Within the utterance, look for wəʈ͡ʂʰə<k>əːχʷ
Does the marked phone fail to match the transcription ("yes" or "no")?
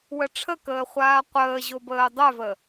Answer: no